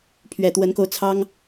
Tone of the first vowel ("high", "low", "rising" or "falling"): low